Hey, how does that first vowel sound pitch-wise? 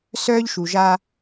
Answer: high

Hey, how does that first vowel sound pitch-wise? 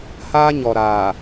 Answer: high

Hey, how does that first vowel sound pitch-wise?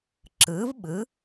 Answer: rising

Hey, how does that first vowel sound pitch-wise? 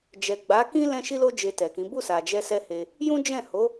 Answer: low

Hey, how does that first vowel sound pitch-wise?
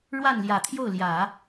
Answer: falling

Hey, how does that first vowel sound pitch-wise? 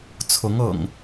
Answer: rising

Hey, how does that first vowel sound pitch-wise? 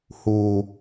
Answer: high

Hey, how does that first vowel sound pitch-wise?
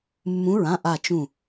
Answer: rising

